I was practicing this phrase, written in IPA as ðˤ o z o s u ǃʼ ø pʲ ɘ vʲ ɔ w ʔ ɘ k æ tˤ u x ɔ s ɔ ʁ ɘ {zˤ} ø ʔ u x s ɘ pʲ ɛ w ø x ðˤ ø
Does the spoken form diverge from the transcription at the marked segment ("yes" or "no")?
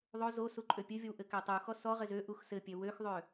yes